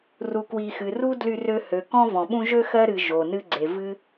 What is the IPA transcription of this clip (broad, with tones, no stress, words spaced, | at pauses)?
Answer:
ru˨kwi˨xɨ˩ ru˦ dly˦rø˦hø˩ kɔ̃˦vɔ̃˩ɓũ˦ʒø˥ xɜ˥ɾɨ˨ ʒo˩ nɨ˦ɡ͡ǀe˩ vɨ˦